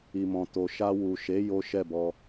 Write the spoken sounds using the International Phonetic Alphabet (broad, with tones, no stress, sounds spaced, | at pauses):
i˨ m ɔ̃˨ t o˨ ʃ a˧ w u˨ ʃ e˨˦ j o˦ ʃ ɛ˦˨ b ɔ˧